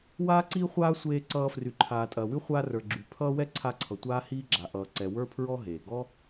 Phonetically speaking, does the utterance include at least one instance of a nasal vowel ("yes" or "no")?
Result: no